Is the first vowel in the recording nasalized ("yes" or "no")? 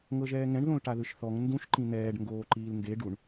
no